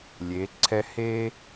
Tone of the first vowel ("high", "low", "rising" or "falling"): rising